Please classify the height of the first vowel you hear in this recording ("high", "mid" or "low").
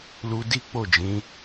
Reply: high